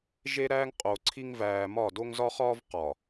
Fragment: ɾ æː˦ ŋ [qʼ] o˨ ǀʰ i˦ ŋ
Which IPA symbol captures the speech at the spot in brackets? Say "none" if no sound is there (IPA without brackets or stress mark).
qʼ